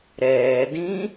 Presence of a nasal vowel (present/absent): present